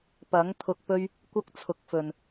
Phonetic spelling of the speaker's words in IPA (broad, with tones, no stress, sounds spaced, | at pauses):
p ɐ˨˥ ŋ t̪ʰ ʊ˧ k̚ p ɵ˥ ɥ | kʷ ɐ˥ k̚ t͡sʰ ʊ˨˥ k̚ f ɵ˨ n